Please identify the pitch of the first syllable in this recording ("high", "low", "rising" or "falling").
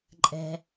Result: low